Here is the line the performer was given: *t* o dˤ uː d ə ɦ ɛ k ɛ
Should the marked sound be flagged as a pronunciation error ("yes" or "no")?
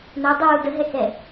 yes